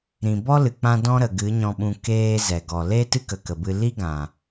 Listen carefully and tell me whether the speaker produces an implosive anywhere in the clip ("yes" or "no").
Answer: yes